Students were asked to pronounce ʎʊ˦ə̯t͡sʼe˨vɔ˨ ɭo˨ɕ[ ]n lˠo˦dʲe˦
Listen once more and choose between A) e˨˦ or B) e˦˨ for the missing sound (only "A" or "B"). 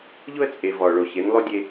A